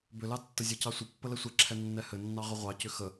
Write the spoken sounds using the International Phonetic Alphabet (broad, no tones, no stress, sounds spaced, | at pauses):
b ʏ l ɑ tː ə zʲ ɵ c ɑ sʷ ə pː ə l ɛ sʷ ɛ ǁʰ ɛ nː ɛ h ɘ nː ɑ ʁ ʏ ʁʷ ɑ c ʏ x ə